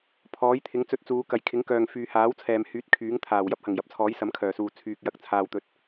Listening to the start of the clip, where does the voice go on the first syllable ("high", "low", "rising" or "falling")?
rising